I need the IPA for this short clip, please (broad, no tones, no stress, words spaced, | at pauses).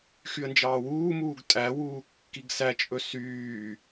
xyə̯nd͡ʒɑːwuːmuːɡ tʼæwuː kːiɡsæt͡ʃʼɵ syː